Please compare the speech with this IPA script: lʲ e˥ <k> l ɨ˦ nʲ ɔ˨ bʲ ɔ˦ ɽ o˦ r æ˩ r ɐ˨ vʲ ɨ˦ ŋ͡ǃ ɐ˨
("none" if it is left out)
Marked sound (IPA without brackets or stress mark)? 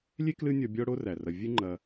k